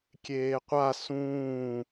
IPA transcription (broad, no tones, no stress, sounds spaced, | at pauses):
kʲ eː qʷ a s ũː